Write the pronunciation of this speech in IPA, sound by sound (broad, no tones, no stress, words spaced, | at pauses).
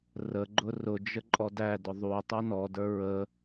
rəɡ͡ǃʊ rʊd͡ʒə ǃʼɔdædʊ ðˤu tˤunɔdə˞ ɹə